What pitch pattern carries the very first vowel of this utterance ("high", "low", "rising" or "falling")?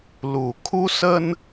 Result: low